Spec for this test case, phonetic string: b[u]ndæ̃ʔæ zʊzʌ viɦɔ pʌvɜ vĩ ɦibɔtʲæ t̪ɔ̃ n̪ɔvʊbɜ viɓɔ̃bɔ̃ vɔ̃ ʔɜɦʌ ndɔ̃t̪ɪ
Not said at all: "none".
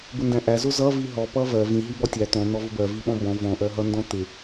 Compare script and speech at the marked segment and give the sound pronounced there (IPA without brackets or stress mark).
ʊ